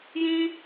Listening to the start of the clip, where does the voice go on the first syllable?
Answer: high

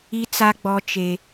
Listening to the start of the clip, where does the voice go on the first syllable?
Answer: high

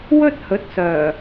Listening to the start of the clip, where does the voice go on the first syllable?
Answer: high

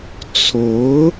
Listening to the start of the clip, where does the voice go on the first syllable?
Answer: rising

